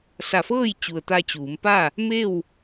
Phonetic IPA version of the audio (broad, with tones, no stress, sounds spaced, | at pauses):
s a˧˩ f ɤː˥˨ j t͡ɕ u˩ ə̯ t̪ a˧ t͡ɕ uː˩˧ m p a˥˨ | m e˥˨ w